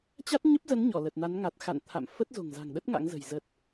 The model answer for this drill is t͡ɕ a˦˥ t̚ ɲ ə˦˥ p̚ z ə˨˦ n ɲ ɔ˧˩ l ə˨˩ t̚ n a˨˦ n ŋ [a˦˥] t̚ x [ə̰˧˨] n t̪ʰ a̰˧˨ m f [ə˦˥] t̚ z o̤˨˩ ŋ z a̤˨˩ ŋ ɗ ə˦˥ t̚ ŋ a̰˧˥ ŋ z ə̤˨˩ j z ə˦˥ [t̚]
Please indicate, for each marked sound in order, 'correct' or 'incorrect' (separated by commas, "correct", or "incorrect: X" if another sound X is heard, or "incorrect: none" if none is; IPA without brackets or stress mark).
incorrect: a˨˩, incorrect: a̰˧˨, correct, correct